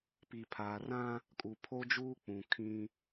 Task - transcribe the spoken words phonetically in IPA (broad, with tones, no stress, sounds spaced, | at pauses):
p i˨ pʰ aː˨ r ã˦ | kʼ u˨ pʰ o˦ d͡ʒ uː˦ k͡p ũ˨ kʰ ĩ˦